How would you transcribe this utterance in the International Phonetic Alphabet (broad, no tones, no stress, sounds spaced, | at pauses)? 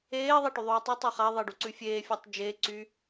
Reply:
eː ðˤ a ʈ y ðˤ ʉː tˤ u tˤ a χ a ðˤ e ɖ u ǀ ʉ fʲ eː fʲ a tˤ d͡ʒ e ǀ y